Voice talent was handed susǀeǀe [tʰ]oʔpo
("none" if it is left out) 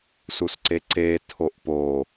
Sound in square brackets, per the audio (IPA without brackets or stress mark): tʰ